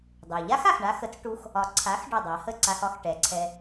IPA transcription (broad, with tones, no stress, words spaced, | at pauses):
dˤɛ˩ ʎa˥xa˩xɳa˧xə˩˥t͡s ʈu˧x | ɒ˩˥ ǀʰa˩˥x ɖɒ˥˩dˤa˩˥ hə˥˩ǀa˧x ɒ˥xʈɛ˩˥ǀʰɛ˧